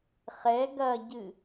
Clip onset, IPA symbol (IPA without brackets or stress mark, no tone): χ